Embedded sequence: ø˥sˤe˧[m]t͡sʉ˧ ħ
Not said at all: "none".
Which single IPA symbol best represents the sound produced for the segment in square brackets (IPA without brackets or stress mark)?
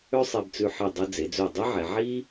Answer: b